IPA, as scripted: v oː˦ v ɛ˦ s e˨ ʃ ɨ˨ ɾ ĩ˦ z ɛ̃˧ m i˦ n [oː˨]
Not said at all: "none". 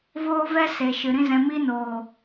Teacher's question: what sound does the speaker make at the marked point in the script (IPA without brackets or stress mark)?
oː˨